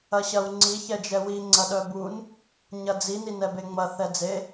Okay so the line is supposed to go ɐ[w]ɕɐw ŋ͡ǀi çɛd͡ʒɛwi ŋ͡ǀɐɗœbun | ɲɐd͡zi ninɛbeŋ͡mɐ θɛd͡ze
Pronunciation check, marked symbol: incorrect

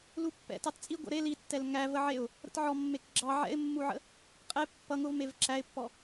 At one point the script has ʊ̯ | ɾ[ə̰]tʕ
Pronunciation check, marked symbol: correct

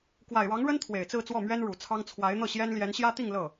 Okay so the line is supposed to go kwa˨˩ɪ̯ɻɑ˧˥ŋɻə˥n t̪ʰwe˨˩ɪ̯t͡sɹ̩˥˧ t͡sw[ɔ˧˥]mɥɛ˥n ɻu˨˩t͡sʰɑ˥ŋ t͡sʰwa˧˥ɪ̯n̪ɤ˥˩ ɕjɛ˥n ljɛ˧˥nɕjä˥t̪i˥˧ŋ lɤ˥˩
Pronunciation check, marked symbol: incorrect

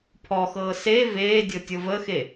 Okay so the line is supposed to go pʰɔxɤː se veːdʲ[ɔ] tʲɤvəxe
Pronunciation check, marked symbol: incorrect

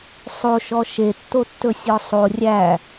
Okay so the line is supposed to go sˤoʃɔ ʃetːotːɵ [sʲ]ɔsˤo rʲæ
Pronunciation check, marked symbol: correct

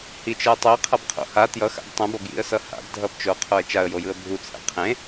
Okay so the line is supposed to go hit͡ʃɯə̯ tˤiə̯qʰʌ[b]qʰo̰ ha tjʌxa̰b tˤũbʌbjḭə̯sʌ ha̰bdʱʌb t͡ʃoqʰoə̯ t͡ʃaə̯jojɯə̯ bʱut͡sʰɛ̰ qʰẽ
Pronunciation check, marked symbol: correct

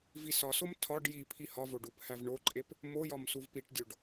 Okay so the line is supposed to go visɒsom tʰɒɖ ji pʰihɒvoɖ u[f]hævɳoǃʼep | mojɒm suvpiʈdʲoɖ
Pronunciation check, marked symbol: incorrect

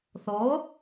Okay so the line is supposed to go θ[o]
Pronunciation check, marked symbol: correct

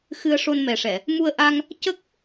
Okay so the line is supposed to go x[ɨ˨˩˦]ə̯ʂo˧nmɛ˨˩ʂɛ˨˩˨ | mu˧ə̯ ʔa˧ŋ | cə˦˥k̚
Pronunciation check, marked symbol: incorrect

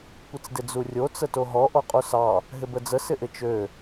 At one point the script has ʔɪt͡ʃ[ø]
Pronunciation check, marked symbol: correct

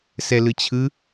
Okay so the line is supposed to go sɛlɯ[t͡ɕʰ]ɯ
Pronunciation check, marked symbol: correct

